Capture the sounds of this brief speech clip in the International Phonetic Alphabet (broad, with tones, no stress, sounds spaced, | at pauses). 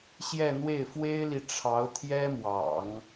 ɕ j ɛ˥˧ n̪ w e˥˩ ɪ̯ f w e˥ ɪ̯ l i˨ ʈ͡ʂʰ ɑ˧˥ ʊ̯ t̪ʰ j ɛ˥ m w ɑ̰˨˩˦ ŋ